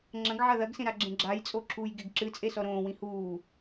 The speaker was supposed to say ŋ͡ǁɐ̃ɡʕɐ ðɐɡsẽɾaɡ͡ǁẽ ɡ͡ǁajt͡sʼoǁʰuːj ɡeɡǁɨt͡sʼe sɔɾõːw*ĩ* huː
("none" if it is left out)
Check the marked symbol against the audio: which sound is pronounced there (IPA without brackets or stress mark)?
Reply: ĩ